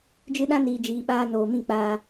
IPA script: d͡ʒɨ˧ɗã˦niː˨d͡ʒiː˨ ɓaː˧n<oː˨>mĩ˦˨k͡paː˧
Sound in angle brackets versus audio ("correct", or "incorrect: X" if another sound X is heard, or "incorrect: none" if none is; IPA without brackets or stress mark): correct